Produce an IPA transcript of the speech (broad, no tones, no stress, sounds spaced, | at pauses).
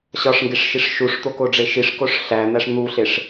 ɕ ɒ ʂ ŋ ɡ e ʂ ʃ i ʂ ʃ u ʂ t̪ o k o ɖ͡ʐ e ʃ i ʂ k o ʂ ɬ æ n̪ æ ʂ n̪ u ɬ e ʂ